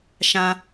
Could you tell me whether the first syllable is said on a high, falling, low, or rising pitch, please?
high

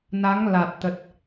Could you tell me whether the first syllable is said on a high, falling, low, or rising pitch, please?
rising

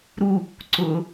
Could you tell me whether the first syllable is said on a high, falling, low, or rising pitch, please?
falling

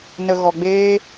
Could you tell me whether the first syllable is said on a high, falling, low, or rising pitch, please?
low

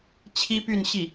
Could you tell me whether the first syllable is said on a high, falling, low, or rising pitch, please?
high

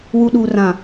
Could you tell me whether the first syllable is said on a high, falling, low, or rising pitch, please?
low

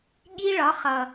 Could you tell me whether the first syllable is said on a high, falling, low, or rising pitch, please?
high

